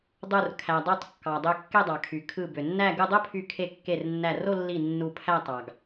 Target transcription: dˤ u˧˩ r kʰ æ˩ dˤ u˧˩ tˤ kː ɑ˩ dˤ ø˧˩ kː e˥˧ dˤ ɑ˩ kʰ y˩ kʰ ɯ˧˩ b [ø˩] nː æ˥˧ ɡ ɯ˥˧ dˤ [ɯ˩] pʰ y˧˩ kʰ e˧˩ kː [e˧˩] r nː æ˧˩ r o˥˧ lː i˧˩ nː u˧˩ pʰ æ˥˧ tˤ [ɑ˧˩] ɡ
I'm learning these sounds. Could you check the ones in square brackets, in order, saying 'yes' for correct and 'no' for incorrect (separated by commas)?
yes, no, yes, no